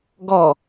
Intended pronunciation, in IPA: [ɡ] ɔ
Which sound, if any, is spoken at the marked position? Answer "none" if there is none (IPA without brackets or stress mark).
ɡ